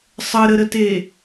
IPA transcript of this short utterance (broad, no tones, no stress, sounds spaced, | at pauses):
sˤ ə ɾ ə ɾ ə t e